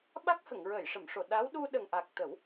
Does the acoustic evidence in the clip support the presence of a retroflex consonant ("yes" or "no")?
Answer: yes